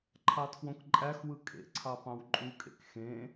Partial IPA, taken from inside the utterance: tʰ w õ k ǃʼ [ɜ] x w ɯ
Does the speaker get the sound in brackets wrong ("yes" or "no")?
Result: yes